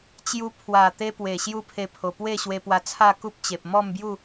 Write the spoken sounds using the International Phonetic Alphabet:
t͡ɕ j u˧ pʰ w a˨˩ t̪ e˦ p w e˨˩ ɕ j u˦ pʰ e˧ pʰ o˨˩ p w e˥˧ ɕ w e˧ p w a˧ t͡sʰ a˥˧ k u˦ p̚ t͡ɕ e˨ p̚ m ɔ˥˧ m b j u˥˧

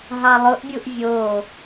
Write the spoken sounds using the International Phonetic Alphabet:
ɦ ɑ lˠ ʊ ʔ bʲ u ʔ vʲ o

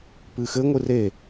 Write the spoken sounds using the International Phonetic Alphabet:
p ɨ x ɘ ŋʷ ɨ r e

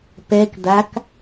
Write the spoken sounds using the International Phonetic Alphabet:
p ɛ k d̪ a k

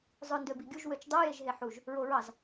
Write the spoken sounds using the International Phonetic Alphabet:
zˤ ɵ n d ø b i ɡʲ u ʒ w ø t͡ʃ dˤ o j e ʒ ɦ e ħ u ʒ | ɹ o ɹ ɑ z

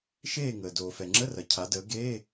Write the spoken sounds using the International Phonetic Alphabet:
ʃ eː˦˨ ŋ əː˩ d oː˩ f ɛ˩ ŋ͡ǁ ə˧˥˧ r ɐ˩ cʰ a˩˧ d əː˩˧ ɡ eː˧˥˧

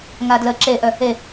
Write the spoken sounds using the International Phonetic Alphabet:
ŋ a d l ə ǁ e ʔ œ | e

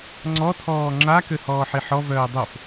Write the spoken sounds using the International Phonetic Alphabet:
ŋ͡ǀ ɔ tʰ ɔː ŋ͡ǁ a k ø h ɔː ħ i ħ ɔ v œː dˤ o f

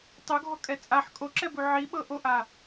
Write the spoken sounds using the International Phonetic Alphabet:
tˤ o ɡʱ ɔ kʼ ɛ t͡sʼ a ħ kʼ o ǁ ɛ b u ʕ i ɓ ɤ ʔ o ʔ a

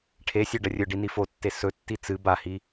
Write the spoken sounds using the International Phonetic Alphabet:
ʈʰ e sʲ o ɖ ɐ rʲ ɵ ɖ i n i f o tː e s ɵ tː i t͡s ɨ b a h i

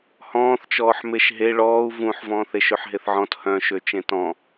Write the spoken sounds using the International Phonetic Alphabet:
h ɔ̃ː θ t͡ʃ ɔː ħ m e ʃ ɦ e ɭ ɔː u̯ v ũ ħ v ɔ̃ː θ e ʃ ø ħ ɦ e θ ʕ ɔ̃ t h œ̃ ʃ ø t͡ʃ ẽ t ɔ̃

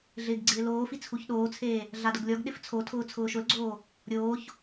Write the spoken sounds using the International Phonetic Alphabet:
ɮ ɪː ɡ ɡ͡ǀ ɪː l oː f i t͡sʰ u ç ɗ oː t͡sʰ eː | ɮ a d ʊ ɡ lʲ ɔ ɡ ɗ ɪ f t͡sʰ o tʰ ʊː t͡sʰ ʊː ʃ ʊ l ɡ͡ǀ oː | ɾʲ oː ç

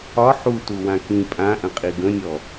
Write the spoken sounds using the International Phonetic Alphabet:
ɒ ħ u t u w ã k ĩ pʼ ã ʔ ə̃ qʼ i ɡ ə̃ nʲ ɔ

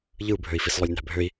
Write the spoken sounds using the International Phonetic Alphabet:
ʎ ɯ u̯ bʱ ø i̯ f i s lˠ ø lʲ n æ̤ bʱ ø i̯

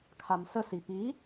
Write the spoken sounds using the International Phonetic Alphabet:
kʰ a m s ə s i p i

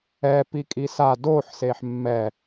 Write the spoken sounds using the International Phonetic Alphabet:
ɛ p i kʼ i s a d o ħ s e ħ mː ɛ

